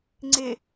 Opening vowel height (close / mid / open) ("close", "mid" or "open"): close